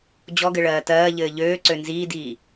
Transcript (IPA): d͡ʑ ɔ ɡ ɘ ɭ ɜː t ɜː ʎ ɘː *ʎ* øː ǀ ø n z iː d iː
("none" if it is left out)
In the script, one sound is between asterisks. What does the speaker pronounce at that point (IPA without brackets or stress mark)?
ʎ